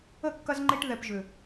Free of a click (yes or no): no